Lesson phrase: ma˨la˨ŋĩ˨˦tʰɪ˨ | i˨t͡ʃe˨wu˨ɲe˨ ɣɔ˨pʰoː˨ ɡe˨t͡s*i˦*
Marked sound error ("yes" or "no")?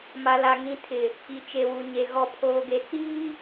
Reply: yes